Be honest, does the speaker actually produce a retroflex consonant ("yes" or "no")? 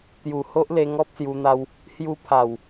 no